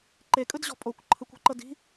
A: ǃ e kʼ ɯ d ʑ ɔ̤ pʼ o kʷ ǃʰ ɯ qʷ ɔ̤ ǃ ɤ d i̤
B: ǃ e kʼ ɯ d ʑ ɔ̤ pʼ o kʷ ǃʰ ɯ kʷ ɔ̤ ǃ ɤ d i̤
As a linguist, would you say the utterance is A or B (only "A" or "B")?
B